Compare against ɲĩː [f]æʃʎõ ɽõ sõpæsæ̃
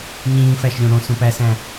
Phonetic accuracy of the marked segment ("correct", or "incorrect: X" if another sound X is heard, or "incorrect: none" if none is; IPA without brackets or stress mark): correct